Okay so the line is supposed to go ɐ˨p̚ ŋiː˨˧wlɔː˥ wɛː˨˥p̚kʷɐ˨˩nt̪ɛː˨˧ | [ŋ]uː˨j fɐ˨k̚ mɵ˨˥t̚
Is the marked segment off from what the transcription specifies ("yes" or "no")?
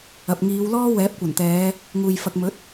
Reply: no